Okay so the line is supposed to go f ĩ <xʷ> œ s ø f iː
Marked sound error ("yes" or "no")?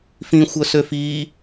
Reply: no